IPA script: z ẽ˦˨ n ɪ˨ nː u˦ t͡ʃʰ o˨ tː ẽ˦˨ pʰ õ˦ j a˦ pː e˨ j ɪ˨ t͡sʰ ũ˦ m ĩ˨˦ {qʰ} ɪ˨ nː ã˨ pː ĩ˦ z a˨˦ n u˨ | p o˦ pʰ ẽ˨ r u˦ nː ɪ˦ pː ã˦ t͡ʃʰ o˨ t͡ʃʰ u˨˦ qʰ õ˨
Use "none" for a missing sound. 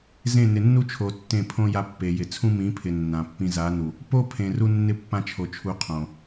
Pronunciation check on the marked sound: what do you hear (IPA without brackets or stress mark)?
pʰ